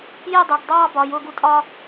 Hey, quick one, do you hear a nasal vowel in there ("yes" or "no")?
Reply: no